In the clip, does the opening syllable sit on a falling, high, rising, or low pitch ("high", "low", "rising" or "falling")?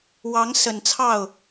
rising